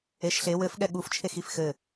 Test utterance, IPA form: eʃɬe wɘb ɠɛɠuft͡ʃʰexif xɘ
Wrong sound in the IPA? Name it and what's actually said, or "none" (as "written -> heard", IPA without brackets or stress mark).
b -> f